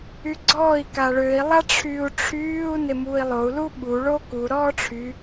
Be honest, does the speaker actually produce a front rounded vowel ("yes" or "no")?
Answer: yes